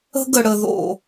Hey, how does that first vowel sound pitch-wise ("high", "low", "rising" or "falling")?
high